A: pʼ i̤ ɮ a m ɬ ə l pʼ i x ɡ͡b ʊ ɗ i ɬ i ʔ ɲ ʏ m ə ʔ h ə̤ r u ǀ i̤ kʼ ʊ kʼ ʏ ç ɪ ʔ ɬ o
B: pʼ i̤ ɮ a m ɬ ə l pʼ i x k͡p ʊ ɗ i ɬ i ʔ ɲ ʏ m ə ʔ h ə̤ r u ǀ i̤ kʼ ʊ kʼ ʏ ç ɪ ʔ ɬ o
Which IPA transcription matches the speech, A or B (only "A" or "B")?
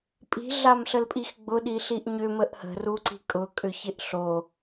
A